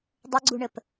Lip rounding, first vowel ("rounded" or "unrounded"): unrounded